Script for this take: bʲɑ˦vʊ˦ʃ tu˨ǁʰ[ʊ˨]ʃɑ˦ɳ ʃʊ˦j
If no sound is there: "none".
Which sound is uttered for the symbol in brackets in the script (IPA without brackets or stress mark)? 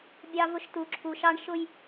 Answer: u˨